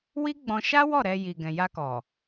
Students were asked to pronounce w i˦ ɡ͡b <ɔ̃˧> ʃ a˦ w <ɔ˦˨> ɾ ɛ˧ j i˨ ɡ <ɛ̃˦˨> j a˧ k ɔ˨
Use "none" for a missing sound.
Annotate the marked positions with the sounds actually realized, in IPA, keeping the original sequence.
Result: ɔ̃˧, ɔ˦˨, ɛ̃˨

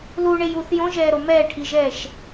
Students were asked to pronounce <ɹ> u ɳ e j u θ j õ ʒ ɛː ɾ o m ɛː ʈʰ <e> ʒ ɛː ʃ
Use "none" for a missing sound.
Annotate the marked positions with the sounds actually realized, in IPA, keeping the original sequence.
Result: l, i

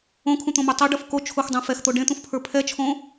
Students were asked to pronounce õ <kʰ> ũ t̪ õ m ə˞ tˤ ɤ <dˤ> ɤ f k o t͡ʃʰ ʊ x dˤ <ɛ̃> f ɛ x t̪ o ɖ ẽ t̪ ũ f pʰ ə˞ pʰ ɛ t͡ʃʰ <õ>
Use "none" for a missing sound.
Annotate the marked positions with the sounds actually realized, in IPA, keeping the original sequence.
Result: kʰ, ɖ, ɛ̃, õ

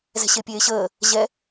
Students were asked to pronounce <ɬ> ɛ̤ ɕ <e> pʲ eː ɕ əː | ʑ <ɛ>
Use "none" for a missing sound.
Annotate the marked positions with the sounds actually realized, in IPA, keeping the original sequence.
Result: z, e, ɛ

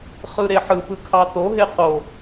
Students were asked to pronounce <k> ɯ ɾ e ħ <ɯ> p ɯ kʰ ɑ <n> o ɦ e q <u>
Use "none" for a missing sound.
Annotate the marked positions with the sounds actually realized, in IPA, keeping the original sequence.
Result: χ, ɯ, t, o

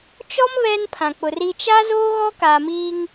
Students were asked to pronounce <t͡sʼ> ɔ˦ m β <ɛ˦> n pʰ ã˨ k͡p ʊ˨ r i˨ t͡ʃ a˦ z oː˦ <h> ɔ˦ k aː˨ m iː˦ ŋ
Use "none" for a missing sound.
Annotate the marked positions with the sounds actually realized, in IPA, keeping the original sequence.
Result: t͡ʃ, ɛ˦, ɣ

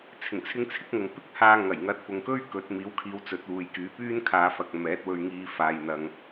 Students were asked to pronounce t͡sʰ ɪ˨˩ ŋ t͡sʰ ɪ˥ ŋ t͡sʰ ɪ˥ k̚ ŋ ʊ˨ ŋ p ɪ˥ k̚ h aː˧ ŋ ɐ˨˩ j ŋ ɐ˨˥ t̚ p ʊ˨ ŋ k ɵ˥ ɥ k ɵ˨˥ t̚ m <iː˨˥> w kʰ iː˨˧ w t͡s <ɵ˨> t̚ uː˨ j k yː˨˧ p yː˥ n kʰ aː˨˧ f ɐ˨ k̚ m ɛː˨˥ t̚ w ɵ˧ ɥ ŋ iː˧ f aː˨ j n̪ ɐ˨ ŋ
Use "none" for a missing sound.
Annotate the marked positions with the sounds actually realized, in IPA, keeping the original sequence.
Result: iː˨˥, ɵ˨˥

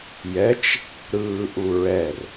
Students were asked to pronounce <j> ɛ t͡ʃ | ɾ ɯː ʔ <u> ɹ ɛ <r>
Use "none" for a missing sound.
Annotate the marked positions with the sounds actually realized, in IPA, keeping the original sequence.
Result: j, u, r

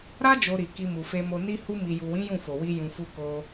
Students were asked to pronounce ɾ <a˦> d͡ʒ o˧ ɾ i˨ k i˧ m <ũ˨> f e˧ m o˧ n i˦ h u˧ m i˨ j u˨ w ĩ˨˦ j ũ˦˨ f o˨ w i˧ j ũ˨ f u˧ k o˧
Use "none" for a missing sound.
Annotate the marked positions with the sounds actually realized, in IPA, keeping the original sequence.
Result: a˦, u˨

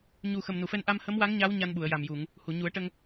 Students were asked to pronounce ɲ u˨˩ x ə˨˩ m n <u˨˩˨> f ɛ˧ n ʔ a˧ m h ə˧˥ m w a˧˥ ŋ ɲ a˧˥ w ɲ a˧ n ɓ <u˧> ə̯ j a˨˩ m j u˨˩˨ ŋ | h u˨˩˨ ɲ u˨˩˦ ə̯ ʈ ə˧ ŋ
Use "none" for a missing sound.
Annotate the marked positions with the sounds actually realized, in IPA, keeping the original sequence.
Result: u˨˩˨, u˨˩˨

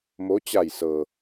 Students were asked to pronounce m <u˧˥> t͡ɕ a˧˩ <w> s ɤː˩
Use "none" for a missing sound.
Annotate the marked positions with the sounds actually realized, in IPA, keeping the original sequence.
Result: o˧˥, j

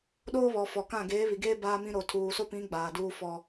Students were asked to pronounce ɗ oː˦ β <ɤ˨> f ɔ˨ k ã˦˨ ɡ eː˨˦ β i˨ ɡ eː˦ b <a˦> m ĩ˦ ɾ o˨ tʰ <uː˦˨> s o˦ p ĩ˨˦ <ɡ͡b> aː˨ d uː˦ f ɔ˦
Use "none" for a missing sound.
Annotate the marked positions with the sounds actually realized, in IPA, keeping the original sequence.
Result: ɔ˨, aː˦, uː˨, ɡ͡b

